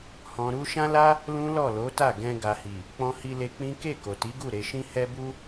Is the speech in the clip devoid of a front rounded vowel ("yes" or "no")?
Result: yes